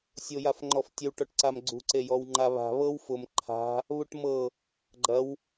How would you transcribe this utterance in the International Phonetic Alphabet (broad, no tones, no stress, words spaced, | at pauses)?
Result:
sʲojafŋ͡ǃɔftʲəw ʈɔʈǀamɡ͡ǀṳ ǀejɔwŋ͡ǃaβa̤ βɤw fʊm ǃʰa̤ | βuʈmɤ | ɡ͡ǃɐw